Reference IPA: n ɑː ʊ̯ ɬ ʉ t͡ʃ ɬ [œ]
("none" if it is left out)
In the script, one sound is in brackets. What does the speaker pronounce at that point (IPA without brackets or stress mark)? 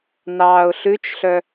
œ